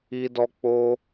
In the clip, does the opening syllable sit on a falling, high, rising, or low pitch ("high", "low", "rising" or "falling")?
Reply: high